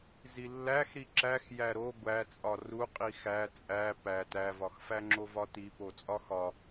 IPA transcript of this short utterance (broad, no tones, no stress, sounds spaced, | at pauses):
z i lː æ x ɾ i ǁ æ x j æ ɾ o ɡʷ æ t͡sʼ ɒ r u qʼ i x æ t͡sʼ æ p æ t æ v ɒ x f æ ŋ͡ǁ o v ɒ t i p o t͡sʼ ɒ x ɒ